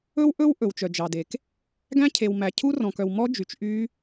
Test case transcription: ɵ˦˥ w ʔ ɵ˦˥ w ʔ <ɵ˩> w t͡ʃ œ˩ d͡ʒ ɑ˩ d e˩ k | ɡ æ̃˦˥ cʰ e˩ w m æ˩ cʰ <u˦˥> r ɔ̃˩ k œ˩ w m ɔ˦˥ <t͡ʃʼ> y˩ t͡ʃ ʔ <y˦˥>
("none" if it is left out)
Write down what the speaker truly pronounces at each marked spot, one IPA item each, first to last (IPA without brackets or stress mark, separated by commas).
ɵ˩, u˦˥, d͡ʒ, y˦˥